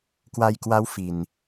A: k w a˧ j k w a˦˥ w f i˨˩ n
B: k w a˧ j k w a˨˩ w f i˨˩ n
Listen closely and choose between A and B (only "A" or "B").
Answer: A